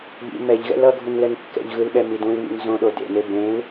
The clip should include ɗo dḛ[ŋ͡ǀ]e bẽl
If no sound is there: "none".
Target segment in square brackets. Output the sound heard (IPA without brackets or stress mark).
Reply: n